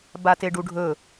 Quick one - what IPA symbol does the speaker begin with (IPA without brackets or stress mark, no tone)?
b